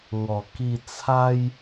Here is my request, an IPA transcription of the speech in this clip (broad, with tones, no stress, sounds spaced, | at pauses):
ŋ ɔ˨˩ k i˧ t͡sʰ a˦ j